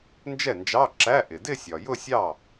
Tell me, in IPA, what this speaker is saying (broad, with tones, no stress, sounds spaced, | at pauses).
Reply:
n d͡ʒ ɛ˥˩ n d͡ʒ ɑ˧˥˧ ǁ æ˧˥˧ ʔ ɪ˩ d ɪ˥˧ sʲ ɒ˩ j ʊ˥˧ sʲ ɑ˥˩